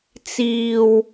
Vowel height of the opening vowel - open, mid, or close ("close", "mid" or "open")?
close